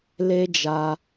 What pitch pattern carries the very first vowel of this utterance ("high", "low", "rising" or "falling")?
high